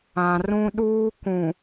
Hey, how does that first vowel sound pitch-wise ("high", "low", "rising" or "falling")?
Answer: low